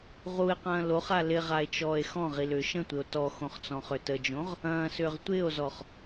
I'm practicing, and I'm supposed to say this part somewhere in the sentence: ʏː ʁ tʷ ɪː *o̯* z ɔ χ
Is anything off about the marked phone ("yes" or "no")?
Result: no